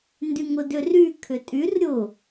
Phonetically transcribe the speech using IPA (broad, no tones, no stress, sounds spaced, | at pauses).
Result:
n d y ŋ ʊ d ʏ r y kʰ ʏ tʼ y r ɾʲ ʊ